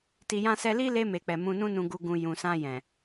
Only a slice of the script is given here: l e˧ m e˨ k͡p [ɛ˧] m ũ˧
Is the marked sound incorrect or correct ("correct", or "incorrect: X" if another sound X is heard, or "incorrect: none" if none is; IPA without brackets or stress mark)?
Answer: incorrect: ɛ˨